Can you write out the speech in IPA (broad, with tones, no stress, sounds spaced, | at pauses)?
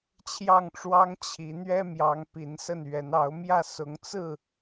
t͡ɕʰ j ɑ˥˨ ŋ ʈ͡ʂ w ɑ˦ ŋ t͡ɕʰ i˨˦ n̪ ɥ ɛ˦ m j ɑ˨˦ ŋ p i˨˦ n s ə˥˨ n ɥ ɛ˨˦ n ɑ˨˦ ʊ̯ m j ä˥˨ s ʊ˨˦ ŋ t͡s ɹ̩˥˨